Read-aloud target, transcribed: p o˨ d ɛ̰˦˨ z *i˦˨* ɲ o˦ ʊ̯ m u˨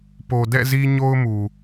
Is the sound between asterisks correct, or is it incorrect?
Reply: incorrect